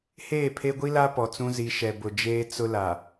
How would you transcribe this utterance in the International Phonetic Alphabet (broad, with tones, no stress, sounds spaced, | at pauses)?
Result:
h eː˦˨ pʰ e˦ ɡʷ i˦ l a˦ p ɔ˨ t͡s ũ˦ z i˨˦ ʃ ɛ˨ b ʊ˨ d͡ʒ eː˦ t͡s ʊ˦ l a˨